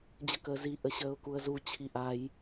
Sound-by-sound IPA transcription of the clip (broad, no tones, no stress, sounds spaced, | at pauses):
d͡ʑ ə k əː z i ʔ ə ɕ əː ʊ̯ k u ə̯ z u t͡ɕʰ i ʔ a j